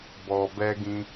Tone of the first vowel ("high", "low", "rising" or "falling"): low